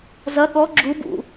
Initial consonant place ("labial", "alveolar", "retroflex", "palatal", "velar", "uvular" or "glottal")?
alveolar